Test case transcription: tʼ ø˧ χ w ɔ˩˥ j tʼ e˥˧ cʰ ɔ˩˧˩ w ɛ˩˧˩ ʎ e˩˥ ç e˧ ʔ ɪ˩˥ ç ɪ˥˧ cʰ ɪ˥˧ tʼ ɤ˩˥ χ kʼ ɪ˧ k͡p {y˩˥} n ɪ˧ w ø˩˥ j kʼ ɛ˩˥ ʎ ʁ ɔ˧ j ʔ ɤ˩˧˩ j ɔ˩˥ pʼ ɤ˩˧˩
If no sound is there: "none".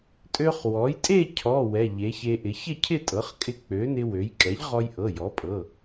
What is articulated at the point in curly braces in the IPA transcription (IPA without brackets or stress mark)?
ø˩˥